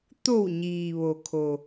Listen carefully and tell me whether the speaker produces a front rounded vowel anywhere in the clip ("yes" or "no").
no